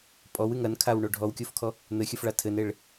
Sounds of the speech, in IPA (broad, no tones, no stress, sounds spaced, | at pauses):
pʼ ɔ w ɨ ŋ ɐ n kʰ a w ɳ o ɖʱ ɔ w kʲ o f kʰ ɔ | n̪ ɘ xʲ ɨ f ɭ a tʰ ɘ n e ɭ